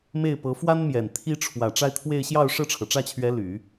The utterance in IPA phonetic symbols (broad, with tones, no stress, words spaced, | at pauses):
me˥˩ɪ̯pɤ˧˥ fwa˥nmjɛ˨˩n t̪ʰi˥ ʈ͡ʂʰwä˨˩ ʈ͡ʂa˥˧ɪ̯t̪ʰwe˥˧ɪ̯ ɕjɑ˥˧ʊ̯ ʂɤ˥˩ʈ͡ʂʰɤ˩ʈ͡ʂä˥˩t͡ɕʰɥɛ˧˥ ly˨˩˦